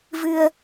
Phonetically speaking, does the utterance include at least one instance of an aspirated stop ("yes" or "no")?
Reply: no